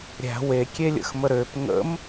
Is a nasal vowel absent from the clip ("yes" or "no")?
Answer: yes